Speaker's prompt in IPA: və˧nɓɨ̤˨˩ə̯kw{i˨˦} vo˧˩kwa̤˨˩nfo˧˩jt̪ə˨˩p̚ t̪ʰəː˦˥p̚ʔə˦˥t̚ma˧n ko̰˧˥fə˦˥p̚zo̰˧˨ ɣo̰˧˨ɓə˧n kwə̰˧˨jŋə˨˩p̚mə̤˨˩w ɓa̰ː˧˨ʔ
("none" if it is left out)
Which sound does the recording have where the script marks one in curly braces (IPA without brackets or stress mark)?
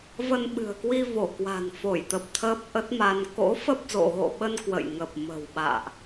i˧